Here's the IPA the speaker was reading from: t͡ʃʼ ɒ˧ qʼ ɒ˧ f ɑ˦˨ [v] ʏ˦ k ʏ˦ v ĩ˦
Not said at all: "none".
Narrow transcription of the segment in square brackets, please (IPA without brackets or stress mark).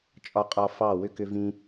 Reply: w